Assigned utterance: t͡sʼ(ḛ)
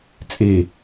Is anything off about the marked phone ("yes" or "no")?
yes